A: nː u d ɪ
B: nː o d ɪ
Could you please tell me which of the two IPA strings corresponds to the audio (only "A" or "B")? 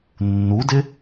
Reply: A